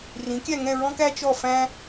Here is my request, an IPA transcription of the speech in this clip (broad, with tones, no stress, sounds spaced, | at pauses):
r ĩ˨˥ kʲ æ˥˧ ŋ ɛ̃˥˧ ɹ ɔ̃˥ k æ˥ t͡ʃ ɔ˥˧ f æ̃˥